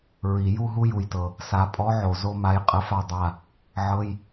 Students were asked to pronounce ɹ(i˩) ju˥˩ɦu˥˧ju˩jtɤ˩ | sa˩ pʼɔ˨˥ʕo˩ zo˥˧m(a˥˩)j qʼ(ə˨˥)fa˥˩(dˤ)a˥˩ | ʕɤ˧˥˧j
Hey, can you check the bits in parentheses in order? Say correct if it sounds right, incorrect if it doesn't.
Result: correct, incorrect: a˨˥, correct, correct

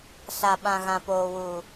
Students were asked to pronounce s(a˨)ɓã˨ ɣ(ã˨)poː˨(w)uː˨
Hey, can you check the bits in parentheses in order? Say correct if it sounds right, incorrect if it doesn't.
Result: correct, correct, correct

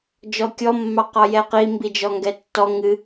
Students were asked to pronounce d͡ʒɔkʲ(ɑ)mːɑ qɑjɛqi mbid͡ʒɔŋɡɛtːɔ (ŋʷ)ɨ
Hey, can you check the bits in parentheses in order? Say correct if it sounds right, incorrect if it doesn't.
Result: incorrect: ɔ, incorrect: ŋ

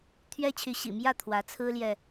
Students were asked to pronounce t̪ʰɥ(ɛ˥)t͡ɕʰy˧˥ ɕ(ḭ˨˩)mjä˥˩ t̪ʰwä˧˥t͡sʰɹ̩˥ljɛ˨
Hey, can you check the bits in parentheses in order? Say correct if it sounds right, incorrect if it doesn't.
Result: correct, correct

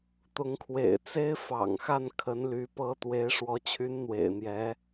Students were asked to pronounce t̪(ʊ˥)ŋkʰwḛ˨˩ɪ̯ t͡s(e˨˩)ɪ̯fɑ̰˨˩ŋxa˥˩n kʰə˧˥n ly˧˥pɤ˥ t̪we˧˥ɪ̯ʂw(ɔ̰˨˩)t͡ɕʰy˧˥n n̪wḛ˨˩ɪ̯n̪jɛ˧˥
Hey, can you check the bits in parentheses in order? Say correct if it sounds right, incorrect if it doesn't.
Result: incorrect: ʊ˧˥, incorrect: e˥, incorrect: ɔ˧˥

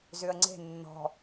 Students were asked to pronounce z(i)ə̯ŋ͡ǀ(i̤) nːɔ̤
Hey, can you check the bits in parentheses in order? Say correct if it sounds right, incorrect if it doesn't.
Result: incorrect: y, incorrect: e̤

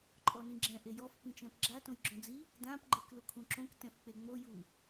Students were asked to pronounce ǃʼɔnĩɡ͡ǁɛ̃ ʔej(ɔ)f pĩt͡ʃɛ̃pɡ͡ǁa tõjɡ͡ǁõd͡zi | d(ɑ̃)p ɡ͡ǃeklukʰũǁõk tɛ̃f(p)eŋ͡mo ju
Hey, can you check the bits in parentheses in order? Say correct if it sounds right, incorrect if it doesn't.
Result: correct, incorrect: ã, incorrect: k͡p

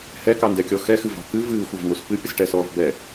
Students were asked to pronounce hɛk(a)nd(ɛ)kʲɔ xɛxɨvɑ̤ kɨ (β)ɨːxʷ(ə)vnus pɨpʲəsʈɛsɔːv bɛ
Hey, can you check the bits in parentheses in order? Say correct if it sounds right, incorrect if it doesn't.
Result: incorrect: ɑ, correct, incorrect: v, incorrect: ɑ

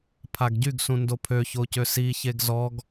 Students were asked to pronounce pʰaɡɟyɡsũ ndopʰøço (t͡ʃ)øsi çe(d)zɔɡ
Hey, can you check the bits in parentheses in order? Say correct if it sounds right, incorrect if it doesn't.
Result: incorrect: c, incorrect: ɡ

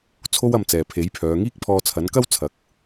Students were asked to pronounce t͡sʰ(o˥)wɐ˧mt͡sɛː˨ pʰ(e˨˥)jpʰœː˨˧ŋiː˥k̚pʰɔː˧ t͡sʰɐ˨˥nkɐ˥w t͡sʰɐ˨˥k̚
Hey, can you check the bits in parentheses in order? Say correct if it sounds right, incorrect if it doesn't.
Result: correct, correct

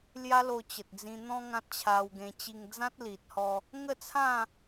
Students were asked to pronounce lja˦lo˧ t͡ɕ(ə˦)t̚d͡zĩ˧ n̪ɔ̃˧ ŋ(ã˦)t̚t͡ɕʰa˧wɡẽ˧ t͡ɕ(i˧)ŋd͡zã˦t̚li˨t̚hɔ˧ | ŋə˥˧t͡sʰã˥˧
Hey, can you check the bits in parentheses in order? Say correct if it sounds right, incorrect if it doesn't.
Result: incorrect: ə˨, correct, correct

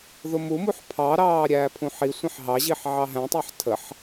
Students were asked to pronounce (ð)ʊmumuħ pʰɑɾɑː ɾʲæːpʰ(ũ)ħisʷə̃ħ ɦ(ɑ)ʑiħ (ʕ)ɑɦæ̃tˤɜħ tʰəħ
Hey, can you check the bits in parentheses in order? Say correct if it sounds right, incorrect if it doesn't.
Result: correct, correct, correct, correct

